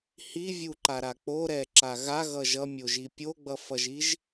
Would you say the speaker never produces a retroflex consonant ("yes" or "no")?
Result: yes